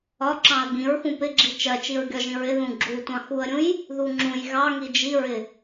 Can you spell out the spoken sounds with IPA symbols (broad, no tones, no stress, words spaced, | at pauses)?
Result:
ɒǁɑ̃ə̯ ɡĩɹxũ pɪɡ͡ǁi t͡ʃɜt͡ʃiɹɡʲɒʒĩ ɹɪðũ ɡ͡ǁu tʷɑ̃xuə̯ɾʲũj | ðuŋ͡ǁũj ɣɑ ŋid͡ʒiɹɪ